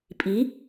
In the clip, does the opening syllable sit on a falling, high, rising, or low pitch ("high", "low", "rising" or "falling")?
rising